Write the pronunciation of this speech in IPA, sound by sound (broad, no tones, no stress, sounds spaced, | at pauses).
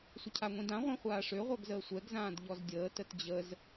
sʷ ə cʰ a ŋʷ ĩ d ã ʁʷ ɛ̃ χʷ aː ʂ ø ʁʷ œ ɡ z əː sʷ ɛ ɡ z ãː d ʎ ɔ z dʲ əː t ə t d͡ʑ ə z